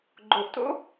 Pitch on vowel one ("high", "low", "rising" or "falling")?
low